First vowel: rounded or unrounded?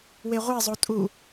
unrounded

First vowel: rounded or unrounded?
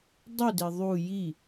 rounded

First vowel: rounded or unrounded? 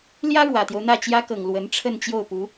unrounded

